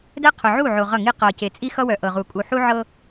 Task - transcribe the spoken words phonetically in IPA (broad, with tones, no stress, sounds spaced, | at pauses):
d ɛ˦ qʰ ʊ˨ ʕ u˦˨ ʕ o˨ ʁ ʌ˦˨ ŋ i˦ q ɤ˨ c e˨ t͡sʼ i˦ x ʌ˦ w œ˨ ʔ ɤ˨ ʁ u˨ kʼ u˨ ħ u˦ ʕ ɤ˦